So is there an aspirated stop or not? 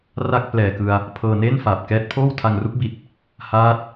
yes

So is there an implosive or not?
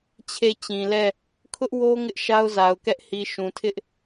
no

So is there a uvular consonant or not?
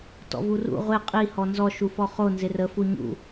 yes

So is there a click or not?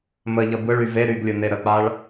no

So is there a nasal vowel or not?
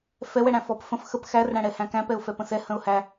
yes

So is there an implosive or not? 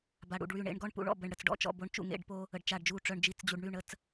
no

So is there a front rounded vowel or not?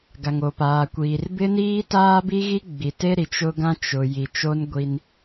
no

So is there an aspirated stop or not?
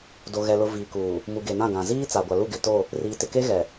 no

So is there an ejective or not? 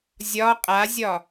yes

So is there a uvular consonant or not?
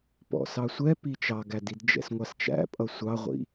yes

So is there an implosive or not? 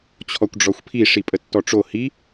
no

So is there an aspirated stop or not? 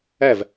no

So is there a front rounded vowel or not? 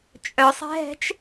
yes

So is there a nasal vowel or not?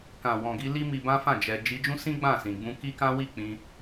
yes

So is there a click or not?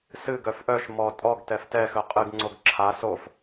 yes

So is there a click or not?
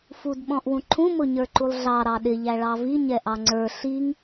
yes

